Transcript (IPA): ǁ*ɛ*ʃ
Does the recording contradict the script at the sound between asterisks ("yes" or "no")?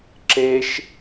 yes